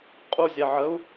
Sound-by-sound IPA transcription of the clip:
qʼ u zʲ ɛ ʕ ə u̯

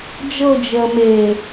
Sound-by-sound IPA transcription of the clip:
d͡ʒ ɤ d͡ʒ əː m e

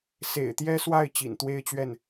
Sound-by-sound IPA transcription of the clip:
s ḛ˨˩ ɪ̯ t̪ j ɛ˥ s w a˥˩ ɪ̯ t͡ɕ ḭ˨˩ n t̪ w e˥˧ ɪ̯ t͡ɕ ɥ ɛ˥˩ n

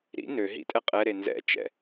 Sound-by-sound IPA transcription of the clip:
ɾ ḭ n ø ɦ ḭ tʼ ɛ qʼ ɛ ɾ e n z ɛ̰ t͡ʃ ɛ̰

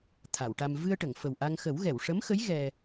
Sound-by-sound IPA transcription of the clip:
t̪ʰ a˨˩˨ w ʈ a˧ m v ɨ˧ ə̯ ʈ ə˨˩˨ ŋ f ə˨˩ w ʔ a˧ ŋ x ə˨˩˦ w ɣ ɛ˨˩˨ w ʂ ə˧˥ m x ə˧˥ j ɣ ɛ˧

